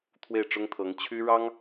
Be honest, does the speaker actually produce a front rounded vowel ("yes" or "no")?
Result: yes